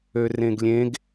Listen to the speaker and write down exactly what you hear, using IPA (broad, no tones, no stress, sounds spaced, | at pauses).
ø r ẽ ɡ lʲ ẽ ɡ